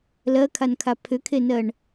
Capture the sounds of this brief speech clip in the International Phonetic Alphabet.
l ɜ kʰ a n kʰ a pʰ ʏ kʰ e n ɜ ɳ

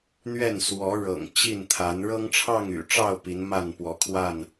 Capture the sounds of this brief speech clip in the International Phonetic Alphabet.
n̪ ɥ ɛ˥˨ n s w ɔ˨˦ ɻ ɤ̰˨˩ ŋ t͡ɕ i˥˨ n t̪ʰ a˨˦ n ɻ ɤ˦ ŋ ʈ͡ʂʰ ɑ˥˨ ŋ y̰˨˩ ʈ͡ʂ ɑ˥˨ ʊ̯ p i˨˦ n m a˥˨ n p w ɔ˨˦ kʰ w a˥˨ n

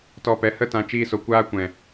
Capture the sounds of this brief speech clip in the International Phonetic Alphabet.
t ɔ˧ p ɛ˨˦ h ə˦ t ã˧ t͡ʃ iː˦ s o˧ kʷ aː˦ kʷ ɛ̃˨

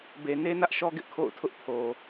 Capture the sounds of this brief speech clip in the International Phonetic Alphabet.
b e˨ n e˦ n ä˦ ʔ ʃ ɔ˦ ɡ ɪ˦ ʔ kʰ o̰˦˨ ʊ̯ tʰ ʊ˦ ʔ pʰ o˨

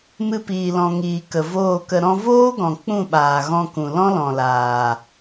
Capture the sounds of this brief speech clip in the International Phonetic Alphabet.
m ɨ˧ p iː˨ l ɔ̃˨ ŋ iː˨ k ə˨ v oː˦˨ k ə˧ ɾ ɔ̃˧ v oː˦ ɡ ɔ̃˨ k͡p ũ˦˨ ɓ aː˨ ɣ ɔ̃˧ k ũ˨ l ɔ̃˦ l ɔ̃˨ l aː˨

